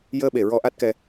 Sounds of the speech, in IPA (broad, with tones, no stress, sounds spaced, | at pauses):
j əː˧ ɓ e˨˩ ɹ ɔ˧ ʔ a˦˥ t̚ k ɛ˧